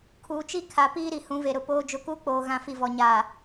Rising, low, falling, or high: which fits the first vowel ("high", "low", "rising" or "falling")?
low